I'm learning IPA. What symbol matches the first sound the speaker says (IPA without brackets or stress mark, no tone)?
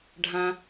ɖʱ